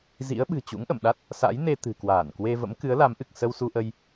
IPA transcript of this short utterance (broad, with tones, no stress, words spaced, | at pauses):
zḭ˧˥ə̯ɓɨ̤˨˩ t͡ɕṵ˧˥ŋʔə̰˧˨mɗa˦˥t̚ | sa̰˧˥jne˧ t̪ɨ̤˨˩kwaː˧˩nkwe˧ və̰˧˥mkɨ˨˦ə̯la˨˦mʔɨ˨˩k̚ sə˧wsu˧ʔə˧j